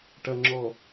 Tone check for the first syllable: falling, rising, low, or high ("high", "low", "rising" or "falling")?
low